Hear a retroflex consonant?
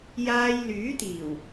no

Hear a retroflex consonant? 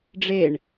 yes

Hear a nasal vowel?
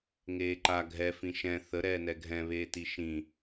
yes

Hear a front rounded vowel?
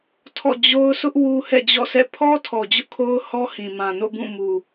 no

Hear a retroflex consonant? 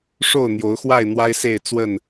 yes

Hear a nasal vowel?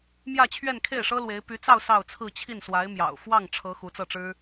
no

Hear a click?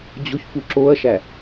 yes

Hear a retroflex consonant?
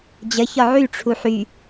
yes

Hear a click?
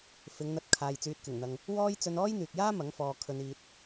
no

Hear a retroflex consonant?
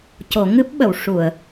yes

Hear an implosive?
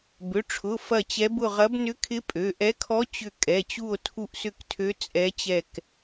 no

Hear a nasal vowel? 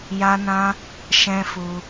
yes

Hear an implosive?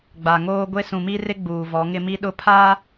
yes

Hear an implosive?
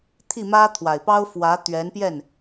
no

